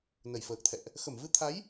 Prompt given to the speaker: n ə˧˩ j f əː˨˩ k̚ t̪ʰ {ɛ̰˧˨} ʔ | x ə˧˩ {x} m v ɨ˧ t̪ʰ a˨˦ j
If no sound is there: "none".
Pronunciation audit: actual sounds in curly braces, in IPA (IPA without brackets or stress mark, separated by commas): ɛ̰˧˨, none